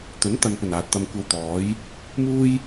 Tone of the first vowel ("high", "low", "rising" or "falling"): rising